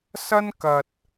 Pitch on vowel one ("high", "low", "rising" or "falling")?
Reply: high